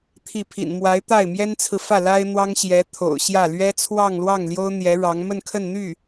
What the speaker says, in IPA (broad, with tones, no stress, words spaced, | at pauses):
t̪ʰi˥˩ pʰḭ˨˩nmwa˧˥ɪ̯ t̪a˥˩ɪ̯ mjɛ˥nt͡sʰɹ̩˨fä˥˩ la˥ɪ̯n̪wɑ˥ŋɕjɛ˧˥t̪ʰo̰˨˩ʊ̯ ɕjä˥˩ lɥɛ˥t͡sʰwɑ˥˧ŋlwɑ˥˩ŋljo˥ʊ̯ n̪jɛ˧˥ɻɑ˧˥ŋ mə˥˧nkʰə˥˧nn̪y˥˩